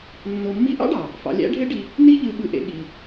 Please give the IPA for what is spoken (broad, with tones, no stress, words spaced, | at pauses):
nːo˧mːi˥ ʔɑ̰˥ɖɑ˩ | fɑ̰˧lʲæ̰˥ɖʱe˥ɖi˧ | ni˥ ʎɯ˧ɓɯ˧ʔḛ˧ ɠi˩